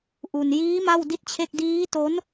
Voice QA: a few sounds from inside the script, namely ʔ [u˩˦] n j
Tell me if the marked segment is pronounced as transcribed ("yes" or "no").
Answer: no